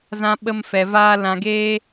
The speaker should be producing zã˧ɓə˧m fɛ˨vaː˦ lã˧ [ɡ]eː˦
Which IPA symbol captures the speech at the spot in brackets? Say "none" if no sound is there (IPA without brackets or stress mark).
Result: ɡ